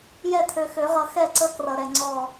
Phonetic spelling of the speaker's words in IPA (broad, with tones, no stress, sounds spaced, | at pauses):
j ɛ˦˨ t̪ʰ ø˨ x ø˨˩˦ ʁ ʌ˨˩˦ x ɛ˦˨ ǀ ə˦˨ k r ʌ˨ ɾ ɛ˨ ŋ͡ǀ ɔ˦˨